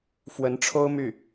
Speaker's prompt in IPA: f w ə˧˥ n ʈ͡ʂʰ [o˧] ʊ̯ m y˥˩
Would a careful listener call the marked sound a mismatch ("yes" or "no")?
yes